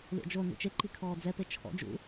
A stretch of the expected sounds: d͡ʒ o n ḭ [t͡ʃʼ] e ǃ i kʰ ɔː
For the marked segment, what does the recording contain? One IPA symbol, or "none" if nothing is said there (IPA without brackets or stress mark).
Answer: t͡ʃ